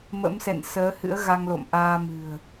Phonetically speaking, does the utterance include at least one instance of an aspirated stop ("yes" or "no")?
no